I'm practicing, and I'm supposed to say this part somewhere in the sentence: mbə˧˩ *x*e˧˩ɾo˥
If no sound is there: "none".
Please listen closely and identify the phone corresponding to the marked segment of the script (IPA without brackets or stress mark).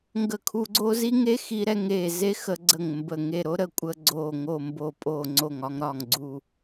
ŋ